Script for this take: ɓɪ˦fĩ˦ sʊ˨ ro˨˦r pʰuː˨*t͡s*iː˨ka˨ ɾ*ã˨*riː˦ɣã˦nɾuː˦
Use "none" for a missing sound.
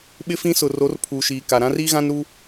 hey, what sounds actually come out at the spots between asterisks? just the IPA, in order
ʃ, ã˦

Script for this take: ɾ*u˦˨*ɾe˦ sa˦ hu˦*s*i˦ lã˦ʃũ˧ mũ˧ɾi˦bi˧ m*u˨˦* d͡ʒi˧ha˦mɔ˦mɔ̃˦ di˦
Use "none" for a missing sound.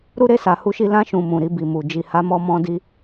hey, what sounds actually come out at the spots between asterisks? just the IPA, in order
u˦, ʃ, u˧

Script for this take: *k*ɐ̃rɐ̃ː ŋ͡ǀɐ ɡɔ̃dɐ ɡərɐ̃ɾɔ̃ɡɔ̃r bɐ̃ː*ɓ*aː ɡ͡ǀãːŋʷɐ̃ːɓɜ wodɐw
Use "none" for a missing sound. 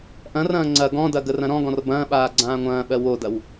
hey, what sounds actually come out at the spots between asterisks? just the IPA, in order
ʔ, ɓ

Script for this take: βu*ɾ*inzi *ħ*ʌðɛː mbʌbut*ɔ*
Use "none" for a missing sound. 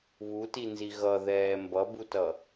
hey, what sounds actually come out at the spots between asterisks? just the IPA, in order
t, ɣ, ʌ

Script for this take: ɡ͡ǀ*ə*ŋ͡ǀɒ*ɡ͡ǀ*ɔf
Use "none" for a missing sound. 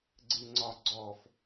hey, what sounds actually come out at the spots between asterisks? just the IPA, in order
ɨ, ɡ͡ǀ

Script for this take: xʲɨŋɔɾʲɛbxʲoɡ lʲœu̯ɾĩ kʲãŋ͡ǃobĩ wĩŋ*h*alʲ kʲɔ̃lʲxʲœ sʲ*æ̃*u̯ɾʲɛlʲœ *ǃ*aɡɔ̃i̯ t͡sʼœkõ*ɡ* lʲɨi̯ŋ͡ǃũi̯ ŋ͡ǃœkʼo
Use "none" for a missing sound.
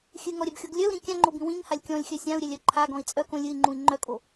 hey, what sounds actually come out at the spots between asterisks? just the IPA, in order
h, ã, ǃʰ, none

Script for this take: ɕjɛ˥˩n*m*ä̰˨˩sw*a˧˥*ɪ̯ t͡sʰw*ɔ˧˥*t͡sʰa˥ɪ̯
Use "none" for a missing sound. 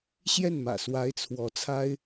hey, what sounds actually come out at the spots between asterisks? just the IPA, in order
m, a˧˥, ɔ˧˥

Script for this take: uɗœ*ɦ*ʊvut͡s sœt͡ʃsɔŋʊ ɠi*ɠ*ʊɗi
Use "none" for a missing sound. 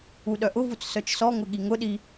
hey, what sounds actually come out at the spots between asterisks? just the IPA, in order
ʔ, ŋ

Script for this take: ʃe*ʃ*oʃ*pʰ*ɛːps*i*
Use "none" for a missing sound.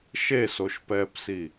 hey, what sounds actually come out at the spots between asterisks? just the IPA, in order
s, p, i

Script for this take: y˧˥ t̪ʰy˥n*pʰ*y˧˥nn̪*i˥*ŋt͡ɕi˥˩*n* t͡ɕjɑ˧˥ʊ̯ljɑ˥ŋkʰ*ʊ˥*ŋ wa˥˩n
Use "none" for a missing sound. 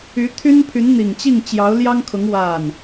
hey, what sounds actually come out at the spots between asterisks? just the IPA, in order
pʰ, i˨˩, ŋ, ʊ˧˥

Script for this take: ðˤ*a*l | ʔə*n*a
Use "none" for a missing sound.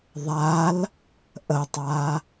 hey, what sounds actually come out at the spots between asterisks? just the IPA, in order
a, tˤ

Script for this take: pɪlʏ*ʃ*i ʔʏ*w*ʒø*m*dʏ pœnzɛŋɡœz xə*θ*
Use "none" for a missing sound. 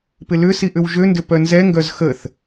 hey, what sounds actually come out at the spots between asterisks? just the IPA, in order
s, w, n, θ

